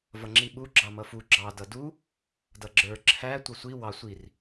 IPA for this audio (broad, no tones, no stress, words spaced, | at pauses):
vʌŋ͡ǁiɓu ɡ͡ǁɑmʌfu ɡ͡ǁɑ dʌdu | dʌɡ͡ǁə˞ ǁʰæ tʷʌsʷi wɑ sʷir